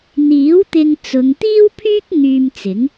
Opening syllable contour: rising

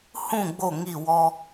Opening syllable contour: falling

